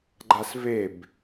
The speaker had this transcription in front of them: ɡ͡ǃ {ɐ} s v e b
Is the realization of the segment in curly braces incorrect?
yes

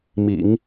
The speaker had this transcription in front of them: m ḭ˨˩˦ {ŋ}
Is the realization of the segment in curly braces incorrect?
no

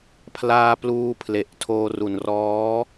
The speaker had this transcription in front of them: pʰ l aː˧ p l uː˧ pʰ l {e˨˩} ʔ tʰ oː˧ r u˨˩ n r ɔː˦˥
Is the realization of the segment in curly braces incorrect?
no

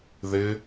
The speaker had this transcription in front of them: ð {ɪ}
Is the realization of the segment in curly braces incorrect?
no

